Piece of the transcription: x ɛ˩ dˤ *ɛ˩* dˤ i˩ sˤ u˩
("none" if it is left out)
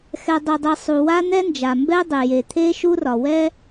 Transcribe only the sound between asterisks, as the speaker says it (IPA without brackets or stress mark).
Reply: e˩